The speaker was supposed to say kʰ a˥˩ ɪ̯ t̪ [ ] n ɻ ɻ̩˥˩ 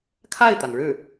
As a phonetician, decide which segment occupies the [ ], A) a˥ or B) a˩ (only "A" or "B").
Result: B